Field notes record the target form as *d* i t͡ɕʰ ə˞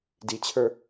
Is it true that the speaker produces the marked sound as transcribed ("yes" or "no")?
yes